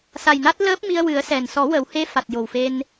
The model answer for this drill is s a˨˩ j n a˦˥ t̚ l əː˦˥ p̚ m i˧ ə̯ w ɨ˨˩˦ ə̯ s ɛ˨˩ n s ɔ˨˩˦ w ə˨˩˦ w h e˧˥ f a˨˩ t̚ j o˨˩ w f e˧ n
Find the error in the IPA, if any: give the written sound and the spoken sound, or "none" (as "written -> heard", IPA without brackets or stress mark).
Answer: none